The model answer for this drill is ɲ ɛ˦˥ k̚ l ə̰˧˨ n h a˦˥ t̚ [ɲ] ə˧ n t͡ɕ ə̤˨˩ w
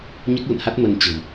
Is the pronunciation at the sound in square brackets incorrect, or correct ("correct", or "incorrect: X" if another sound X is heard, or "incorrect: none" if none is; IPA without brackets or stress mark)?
incorrect: m